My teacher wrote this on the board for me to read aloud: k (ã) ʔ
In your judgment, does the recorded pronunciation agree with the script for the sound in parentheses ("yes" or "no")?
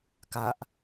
no